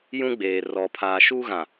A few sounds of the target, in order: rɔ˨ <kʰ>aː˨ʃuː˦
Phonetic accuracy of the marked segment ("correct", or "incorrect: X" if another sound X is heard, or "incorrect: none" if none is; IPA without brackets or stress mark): incorrect: pʰ